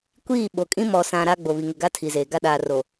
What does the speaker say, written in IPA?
kʷ iː˦˨ ɓ o˨ kʼ ĩ˦ m ɔ˨ s ã˨ ɾ a˦ ɡ͡b o˨ β i˨ ŋ ɪ˨ ɡ a˦ tʰ i˨ z eː˨ ɡ a˦ ɗ aː˨ r o˨

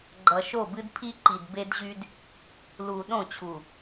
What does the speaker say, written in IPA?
ɡ͡ǃ ʌ˨ ʃ o˦˨ b ɨ˦ d pʰ i˦ ǃ i˨ d b e˦ d ʑ y˦ d | l u˨ ɗ õ˦˨ t͡ɕʰ u˨

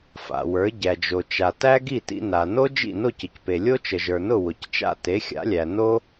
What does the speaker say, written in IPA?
f a̰˩ w ə˞˩˥ ɟ æ˩ d͡ʒ o˩ t͡ʃ a˩ t æ˥ ɡ i˥˩ t ḭ˧ n a˩ n o˥ d͡ʒ ḭ˥˩ n o˥˩ c ə˩ c p e˩ lʲ o˥ t͡ʃ ə˩ ʒ ə˞˩ n ʊ˥˩ w ʊ˩ c t͡ʃ a̰˥˩ t e˩˥ xʲ a̰˩˥ lʲ æ˩ n o˥

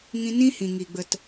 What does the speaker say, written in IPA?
ŋ ĩ˧ n ĩ˦ h ĩ˨ ŋ i˨ ɡ͡b ə˨ t

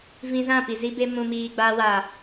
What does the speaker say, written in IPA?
v ĩ˧ z ã˦˨ p i˨ z i˧ b e˧ m ũ˨ m iː˨ ɡ͡b aː˧ w aː˨

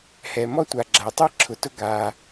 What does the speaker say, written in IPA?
h ɛ˩ m ɔ˥ tʷ a˩ ɡ͡ǁ a˩ tˤ ɛ˥ ǁʰ ʊ˩ t ʊ˥ ɡ a˩

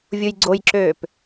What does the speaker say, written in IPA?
vʲ u j ɡ͡ǀ o j ǁ øː p

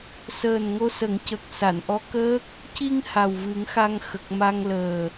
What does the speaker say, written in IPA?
s əː˨˩ n ŋ o˧ s ə˨˩˦ ŋ c ə˨˩ k̚ s a˨˩˨ n ʔ ɔ˧˥ k əː˦˥ k̚ | c i˧ ŋ h a˨˩ w v ɨ˨˩˦ ŋ x a˧ ŋ x ə˨˩ k̚ m a˧ ŋ l əː˨˩

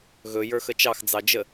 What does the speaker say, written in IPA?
ɣ ɵ j ə˞ x ə t͡ʃ ɑ x d͡z ɑ d͡ʒ ə

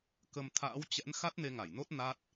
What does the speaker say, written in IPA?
k ə˧ m t̪ʰ a̰ː˧˥ w t͡ɕ ɛ̰˧˥ n x a˦˥ t̚ n e˧ ŋ a˧˩ j n o˦˥ t̚ n a˦˥ t̚

